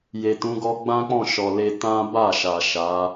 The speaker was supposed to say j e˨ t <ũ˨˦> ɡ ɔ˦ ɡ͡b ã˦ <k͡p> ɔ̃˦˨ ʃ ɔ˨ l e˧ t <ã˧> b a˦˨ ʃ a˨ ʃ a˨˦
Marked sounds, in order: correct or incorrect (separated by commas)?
correct, correct, incorrect